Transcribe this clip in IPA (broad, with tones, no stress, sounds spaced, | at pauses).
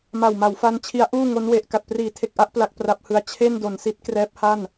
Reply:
m a˨˩ w m a˩˦ w f a˧ n t͡ɕʰ i˦˥ a̯ ʔ uː˥˩ ŋ o˦˥ n w e˨˩ ʔ k a˨˩ t̚ p r iː˩˦ tʰ e˨˩ k̚ ʔ a˥˩ ʔ p l a˦˥ k̚ p r a˦˥ p̚ h ɯ˧ a̯ t͡ɕʰ e˥˩ n d o˩˦ n s i˦˥ t̚ k r ɛː˦˥ p̚ h a˥˩ n